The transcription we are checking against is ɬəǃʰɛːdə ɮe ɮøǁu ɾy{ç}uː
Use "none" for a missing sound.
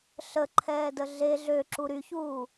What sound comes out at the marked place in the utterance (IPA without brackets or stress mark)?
ç